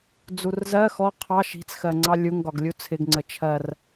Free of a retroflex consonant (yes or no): yes